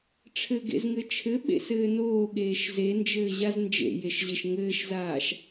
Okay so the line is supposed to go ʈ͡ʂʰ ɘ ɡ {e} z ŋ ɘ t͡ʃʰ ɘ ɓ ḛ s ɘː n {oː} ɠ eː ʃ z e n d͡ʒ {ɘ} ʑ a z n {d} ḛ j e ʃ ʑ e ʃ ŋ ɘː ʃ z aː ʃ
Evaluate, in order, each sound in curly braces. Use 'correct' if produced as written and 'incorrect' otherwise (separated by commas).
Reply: incorrect, correct, incorrect, incorrect